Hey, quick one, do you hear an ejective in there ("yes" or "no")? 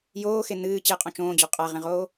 yes